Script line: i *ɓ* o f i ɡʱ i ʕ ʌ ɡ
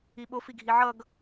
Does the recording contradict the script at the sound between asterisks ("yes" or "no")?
no